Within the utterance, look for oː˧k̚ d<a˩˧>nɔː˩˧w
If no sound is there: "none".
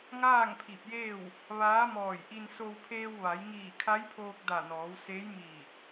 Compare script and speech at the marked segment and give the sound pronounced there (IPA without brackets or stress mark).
a˧˩